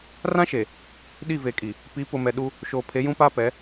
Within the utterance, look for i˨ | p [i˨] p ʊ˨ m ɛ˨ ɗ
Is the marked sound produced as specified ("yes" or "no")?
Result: no